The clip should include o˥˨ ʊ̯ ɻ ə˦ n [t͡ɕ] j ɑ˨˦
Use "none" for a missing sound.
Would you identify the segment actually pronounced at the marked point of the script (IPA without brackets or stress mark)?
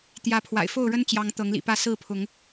t͡ɕ